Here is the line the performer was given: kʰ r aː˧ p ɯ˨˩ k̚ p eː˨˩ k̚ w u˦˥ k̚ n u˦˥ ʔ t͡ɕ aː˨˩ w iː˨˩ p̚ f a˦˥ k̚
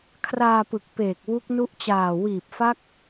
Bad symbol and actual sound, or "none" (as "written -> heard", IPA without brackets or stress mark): none